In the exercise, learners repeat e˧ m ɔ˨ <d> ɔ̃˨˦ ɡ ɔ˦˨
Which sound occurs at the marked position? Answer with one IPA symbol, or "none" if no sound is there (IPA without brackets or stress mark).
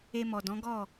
d